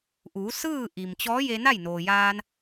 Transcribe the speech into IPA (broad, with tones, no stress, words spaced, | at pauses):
ʔuː˩˧ sɯː˥˨ ʔi˩mt͡ɕɔː˧˥ je˧na˥˨jnoː˩jaː˧n